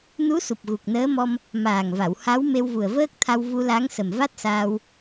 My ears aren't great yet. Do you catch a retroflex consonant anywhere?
no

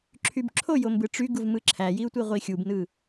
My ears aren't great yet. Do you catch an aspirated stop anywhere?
yes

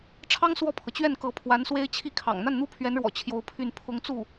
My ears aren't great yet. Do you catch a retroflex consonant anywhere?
yes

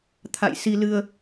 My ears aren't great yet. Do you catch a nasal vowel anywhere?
no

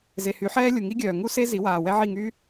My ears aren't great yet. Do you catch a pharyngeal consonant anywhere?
yes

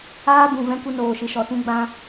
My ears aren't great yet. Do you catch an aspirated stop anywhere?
no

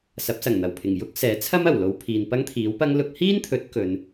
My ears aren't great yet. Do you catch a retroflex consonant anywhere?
no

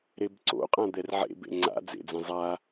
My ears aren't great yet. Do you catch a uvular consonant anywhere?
yes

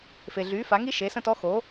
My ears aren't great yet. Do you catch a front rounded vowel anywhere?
yes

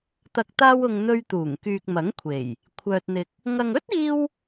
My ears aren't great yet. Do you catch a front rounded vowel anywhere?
yes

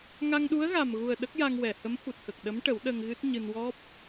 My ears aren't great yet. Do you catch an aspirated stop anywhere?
no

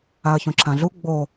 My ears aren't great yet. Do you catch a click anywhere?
yes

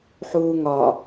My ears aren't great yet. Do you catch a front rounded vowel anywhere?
no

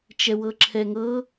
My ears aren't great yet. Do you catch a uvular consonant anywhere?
no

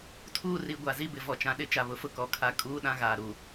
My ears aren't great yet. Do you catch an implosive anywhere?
yes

